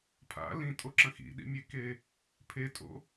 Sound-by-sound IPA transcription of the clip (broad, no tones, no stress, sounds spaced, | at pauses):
pʰ a̰ l ĩ tʼ o ǁ ɐ̃ x ḭ ɗ ḭ mʲ e k e | pʰ e tʼ o̰